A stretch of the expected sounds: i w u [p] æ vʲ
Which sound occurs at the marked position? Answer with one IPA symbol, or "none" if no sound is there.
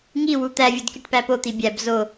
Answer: t̪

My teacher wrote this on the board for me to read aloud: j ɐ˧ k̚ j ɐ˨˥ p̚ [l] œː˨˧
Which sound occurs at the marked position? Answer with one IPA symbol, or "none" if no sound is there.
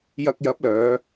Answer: l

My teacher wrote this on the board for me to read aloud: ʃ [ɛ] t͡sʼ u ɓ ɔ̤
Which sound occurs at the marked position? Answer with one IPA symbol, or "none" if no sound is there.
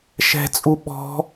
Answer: ɛ̤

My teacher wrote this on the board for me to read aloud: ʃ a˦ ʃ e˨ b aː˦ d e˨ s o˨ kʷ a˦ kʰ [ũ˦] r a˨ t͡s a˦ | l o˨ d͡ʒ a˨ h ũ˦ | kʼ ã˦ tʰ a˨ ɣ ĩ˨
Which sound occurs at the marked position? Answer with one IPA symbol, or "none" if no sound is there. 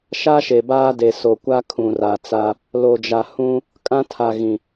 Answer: ũ˨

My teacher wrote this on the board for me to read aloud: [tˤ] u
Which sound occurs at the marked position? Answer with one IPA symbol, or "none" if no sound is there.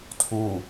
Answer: tʰ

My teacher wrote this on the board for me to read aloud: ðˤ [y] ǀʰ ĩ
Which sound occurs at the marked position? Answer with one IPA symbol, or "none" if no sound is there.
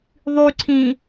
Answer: y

